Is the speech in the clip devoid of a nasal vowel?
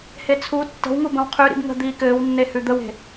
no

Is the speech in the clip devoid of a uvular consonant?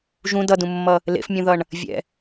yes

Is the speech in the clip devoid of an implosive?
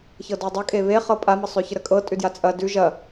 yes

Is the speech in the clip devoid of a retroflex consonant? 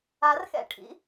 no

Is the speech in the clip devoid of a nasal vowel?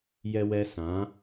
no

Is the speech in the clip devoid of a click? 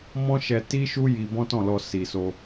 yes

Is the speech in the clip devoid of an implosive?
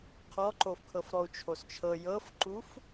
yes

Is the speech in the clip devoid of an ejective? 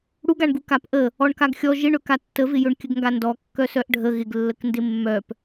yes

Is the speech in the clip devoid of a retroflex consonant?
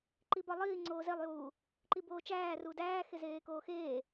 yes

